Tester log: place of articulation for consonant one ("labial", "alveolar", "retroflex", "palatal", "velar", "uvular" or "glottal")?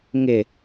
velar